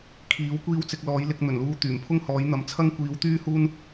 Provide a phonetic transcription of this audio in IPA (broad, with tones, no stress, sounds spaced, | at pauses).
kʰ iː˨˥ w kʷ iː˥ w t͡s ɪ˧ k̚ l ɔː˨˥ j l ɪ˧ k̚ n̪ ɵ˨˩ n l uː˧ t̪ yː˨˩ m pʰ ʊ˥ ŋ h ɔː˨˥ j n̪ ɐ˨˥ m t͡sʰ ɐ˥ ŋ kʷ iː˨˧ w t̪ yː˥ h uː˥ n